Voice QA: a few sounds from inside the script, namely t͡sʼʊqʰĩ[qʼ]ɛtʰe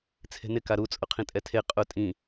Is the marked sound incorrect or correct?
incorrect